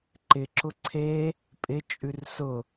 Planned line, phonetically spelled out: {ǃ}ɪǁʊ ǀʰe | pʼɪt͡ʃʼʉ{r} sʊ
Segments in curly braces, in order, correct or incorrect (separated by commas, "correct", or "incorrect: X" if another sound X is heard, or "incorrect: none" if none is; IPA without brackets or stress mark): correct, correct